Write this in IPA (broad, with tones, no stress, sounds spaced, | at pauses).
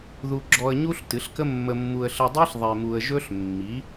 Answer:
ð u˧ ɡ͡ǁ ɔ˧ ə̯ ɲ u˦ ɬ t ɨ˨˦ ɬ k ə˦ mː ə˧ mː u˧ ə̯ ɬ ə˧ dˤ i˦ ɬ ðˤ e˨ m u˨ ə̯ ʒ ɵ˦ ɬ mː i˨˦